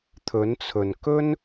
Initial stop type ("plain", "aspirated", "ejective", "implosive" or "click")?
aspirated